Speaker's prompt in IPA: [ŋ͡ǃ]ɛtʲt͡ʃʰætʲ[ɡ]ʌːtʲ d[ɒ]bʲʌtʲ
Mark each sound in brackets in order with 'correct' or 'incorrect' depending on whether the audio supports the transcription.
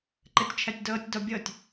incorrect: ǃ, incorrect: d, correct

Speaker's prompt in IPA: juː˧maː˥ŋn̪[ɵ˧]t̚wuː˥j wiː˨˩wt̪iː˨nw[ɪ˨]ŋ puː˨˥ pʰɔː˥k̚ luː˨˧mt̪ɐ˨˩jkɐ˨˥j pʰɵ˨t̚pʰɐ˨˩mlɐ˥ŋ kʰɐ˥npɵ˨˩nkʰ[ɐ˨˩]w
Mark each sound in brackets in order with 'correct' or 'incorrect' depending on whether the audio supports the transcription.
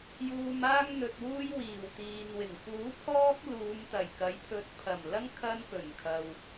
incorrect: ɵ˨, incorrect: ɪ˨˩, incorrect: ɐ˨

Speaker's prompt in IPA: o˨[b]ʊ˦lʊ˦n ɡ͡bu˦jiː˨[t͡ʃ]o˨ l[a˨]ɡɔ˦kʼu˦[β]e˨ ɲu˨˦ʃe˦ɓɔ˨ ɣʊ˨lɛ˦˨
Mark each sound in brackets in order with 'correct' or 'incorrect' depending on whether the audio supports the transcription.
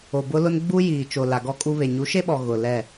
correct, correct, correct, correct

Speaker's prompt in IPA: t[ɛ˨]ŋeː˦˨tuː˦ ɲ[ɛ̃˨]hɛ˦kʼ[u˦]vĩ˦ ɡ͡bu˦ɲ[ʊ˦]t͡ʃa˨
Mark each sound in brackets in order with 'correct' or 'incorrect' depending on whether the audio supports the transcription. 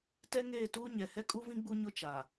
incorrect: ɛ˦, incorrect: ɛ˨, correct, correct

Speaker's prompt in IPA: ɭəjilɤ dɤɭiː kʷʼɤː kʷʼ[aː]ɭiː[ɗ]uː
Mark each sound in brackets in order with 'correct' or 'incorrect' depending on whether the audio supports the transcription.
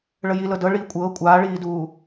correct, incorrect: d

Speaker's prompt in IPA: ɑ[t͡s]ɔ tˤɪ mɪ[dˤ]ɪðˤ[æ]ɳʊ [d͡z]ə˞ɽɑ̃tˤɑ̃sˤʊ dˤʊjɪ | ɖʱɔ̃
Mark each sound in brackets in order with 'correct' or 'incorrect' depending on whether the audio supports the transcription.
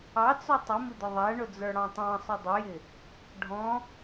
correct, incorrect: d̪, correct, correct

